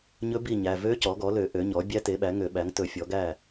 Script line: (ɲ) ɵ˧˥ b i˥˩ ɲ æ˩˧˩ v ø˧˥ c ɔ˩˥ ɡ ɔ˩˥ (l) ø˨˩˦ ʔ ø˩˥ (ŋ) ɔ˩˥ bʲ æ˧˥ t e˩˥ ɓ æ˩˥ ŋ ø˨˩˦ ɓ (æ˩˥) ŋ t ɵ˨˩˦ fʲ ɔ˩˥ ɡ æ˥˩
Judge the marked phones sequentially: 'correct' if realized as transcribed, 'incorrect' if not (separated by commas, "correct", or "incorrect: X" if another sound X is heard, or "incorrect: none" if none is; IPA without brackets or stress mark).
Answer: correct, correct, incorrect: ɲ, correct